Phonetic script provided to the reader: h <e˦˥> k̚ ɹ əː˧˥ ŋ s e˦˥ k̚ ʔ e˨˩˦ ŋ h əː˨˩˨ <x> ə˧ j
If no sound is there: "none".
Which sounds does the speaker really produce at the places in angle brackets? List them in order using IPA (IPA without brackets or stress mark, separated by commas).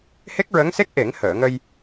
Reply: e˦˥, ŋ